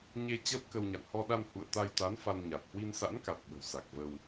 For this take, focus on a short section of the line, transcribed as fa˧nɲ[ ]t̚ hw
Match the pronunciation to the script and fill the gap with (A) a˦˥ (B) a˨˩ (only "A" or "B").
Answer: B